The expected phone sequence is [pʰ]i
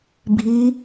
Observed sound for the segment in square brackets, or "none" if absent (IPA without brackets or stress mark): bʱ